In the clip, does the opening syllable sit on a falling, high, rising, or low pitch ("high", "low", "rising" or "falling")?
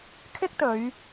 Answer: high